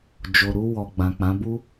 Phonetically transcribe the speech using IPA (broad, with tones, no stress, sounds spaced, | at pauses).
d͡ʒ o˨ ɾ u˧ w ɔ˨ ɡ͡b ã˨ k͡p ã˨˦ b u˦